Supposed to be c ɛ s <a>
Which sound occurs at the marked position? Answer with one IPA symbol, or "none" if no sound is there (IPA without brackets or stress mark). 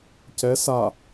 a